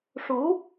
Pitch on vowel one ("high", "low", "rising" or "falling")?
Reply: rising